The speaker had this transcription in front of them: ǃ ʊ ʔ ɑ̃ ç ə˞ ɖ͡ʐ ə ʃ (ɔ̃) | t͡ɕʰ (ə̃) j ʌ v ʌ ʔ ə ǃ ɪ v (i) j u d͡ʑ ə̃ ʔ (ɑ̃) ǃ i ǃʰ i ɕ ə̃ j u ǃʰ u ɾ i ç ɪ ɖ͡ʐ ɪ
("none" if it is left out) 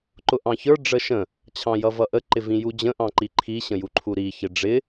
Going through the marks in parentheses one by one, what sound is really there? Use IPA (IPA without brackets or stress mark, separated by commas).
ə̃, ɑ̃, ĩ, ɑ̃